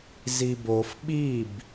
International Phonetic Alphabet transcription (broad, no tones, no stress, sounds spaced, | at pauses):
z i b o f ɓ i b